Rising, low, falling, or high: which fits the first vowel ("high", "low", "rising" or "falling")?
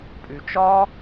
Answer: low